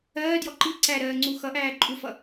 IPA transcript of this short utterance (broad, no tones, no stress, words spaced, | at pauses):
ɜːdjɔ ǃi ǀæɾɜː ŋ͡ǀuxʌʔæː ǃʼufʌ